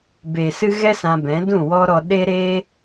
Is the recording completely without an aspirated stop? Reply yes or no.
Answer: yes